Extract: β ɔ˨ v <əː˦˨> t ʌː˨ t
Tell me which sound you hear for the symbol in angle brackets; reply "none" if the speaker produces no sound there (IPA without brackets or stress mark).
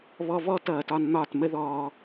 ɔː˦˨